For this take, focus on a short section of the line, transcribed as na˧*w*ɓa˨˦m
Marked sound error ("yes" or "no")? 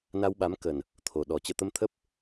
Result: no